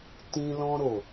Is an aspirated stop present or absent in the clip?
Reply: absent